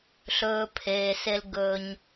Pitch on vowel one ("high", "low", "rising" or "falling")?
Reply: low